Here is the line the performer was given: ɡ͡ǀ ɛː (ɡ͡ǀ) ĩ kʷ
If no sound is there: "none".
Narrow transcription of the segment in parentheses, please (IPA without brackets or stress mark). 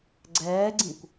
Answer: ɡ͡ǀ